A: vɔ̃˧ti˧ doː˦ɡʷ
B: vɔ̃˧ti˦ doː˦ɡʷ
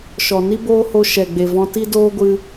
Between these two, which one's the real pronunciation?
B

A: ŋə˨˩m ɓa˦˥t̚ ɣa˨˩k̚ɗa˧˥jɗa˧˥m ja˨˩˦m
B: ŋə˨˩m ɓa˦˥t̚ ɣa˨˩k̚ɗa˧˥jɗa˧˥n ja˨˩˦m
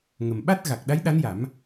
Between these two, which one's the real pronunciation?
B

